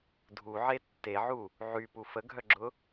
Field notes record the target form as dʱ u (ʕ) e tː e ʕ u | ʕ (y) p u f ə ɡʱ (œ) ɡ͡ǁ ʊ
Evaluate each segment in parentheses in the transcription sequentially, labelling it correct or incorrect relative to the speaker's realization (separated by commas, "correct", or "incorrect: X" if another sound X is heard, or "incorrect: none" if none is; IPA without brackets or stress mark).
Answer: correct, correct, correct